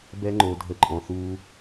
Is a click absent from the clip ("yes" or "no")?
no